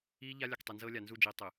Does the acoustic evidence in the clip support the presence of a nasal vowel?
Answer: no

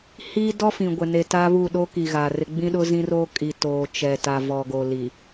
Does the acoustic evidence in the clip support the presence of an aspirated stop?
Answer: no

